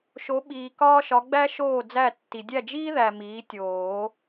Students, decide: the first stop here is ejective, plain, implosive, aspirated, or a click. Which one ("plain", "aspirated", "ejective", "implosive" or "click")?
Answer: implosive